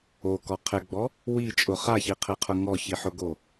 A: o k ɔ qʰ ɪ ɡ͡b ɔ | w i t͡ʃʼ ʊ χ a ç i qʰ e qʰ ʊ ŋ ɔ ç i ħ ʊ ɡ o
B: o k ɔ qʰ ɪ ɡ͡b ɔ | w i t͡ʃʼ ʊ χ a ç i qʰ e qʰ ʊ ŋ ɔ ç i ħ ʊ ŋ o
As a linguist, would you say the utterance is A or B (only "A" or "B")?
A